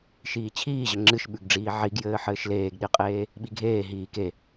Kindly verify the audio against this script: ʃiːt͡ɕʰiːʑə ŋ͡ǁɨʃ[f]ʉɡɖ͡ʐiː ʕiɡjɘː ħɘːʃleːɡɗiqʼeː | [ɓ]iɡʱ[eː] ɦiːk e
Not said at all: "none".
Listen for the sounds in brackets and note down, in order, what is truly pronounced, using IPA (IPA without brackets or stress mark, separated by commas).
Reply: ɓ, ɓ, eː